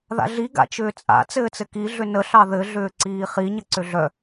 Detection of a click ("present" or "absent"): present